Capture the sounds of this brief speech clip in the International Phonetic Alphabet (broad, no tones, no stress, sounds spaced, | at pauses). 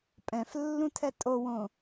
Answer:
pʼ ɛ̃ f lː ũ tʰ ɛ tʼ o w õ